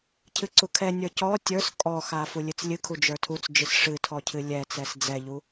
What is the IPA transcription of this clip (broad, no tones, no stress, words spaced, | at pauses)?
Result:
cʰɨǀukʰɛnʲə˞ cɔ tʲə˞s kʼɔxa fulʲɨt͡slʲɨkʰu d͡ʒə˞tʰut͡sd͡ʒɨs ʂɨtʰɔ cʰɨlʲɛt͡sɛs d͡zɛʎu